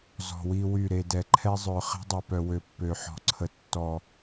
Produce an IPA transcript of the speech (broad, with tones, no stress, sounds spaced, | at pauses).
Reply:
z ɔ̤˨ w i˦ w y˦˨ ɾ e˨ d ɛ˨ ǃʰ ɛ˦ zˤ œ˨ χ e̤˦ dˤ i˨ p œ˨ w ø˨ pː ø˨ ħ ɔ̤˨ ǀʰ ə˨ tː ɔ˨